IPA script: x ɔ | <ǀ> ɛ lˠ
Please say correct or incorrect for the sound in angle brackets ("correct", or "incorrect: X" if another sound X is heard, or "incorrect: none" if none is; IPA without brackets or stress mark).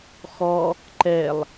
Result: incorrect: ǃ